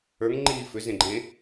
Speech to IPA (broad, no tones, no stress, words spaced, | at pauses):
ə˞ŋ ŋ͡ǃiːfʏ zẽɡ͡ǃẽ